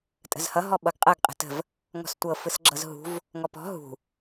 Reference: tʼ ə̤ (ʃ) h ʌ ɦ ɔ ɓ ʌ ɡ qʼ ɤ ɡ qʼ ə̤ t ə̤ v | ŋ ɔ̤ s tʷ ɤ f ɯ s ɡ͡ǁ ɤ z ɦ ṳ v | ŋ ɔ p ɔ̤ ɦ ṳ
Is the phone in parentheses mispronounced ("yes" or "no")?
yes